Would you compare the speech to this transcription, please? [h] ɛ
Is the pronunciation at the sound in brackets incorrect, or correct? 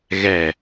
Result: incorrect